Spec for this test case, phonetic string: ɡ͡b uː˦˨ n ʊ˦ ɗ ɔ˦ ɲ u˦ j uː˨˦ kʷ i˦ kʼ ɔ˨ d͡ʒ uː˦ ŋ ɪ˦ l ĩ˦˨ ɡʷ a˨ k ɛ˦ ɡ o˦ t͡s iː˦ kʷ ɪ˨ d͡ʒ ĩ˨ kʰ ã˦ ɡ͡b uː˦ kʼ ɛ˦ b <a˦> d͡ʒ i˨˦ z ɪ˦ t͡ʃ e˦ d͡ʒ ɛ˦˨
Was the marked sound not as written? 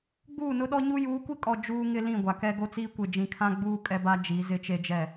no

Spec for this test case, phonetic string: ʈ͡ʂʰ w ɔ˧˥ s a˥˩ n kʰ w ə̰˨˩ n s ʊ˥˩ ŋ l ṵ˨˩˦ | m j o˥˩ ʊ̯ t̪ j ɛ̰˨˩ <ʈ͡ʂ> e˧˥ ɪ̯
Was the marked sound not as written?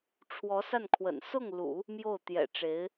no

